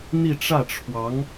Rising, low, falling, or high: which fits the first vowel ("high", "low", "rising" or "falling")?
falling